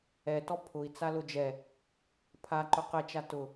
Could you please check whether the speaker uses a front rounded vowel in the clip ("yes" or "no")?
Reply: no